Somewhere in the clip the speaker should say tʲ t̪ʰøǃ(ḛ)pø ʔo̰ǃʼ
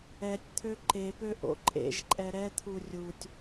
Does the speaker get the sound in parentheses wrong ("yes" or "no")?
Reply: yes